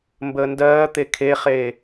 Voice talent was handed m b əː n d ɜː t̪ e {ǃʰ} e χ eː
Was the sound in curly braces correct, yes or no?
no